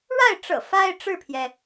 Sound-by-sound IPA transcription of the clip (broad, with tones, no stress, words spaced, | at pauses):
ɻa˥˩ɪ̯ʈ͡ʂɤ̰˨˩ fa˥ɪ̯ ʈ͡ʂɻ̩˥˩pʰjɛ˩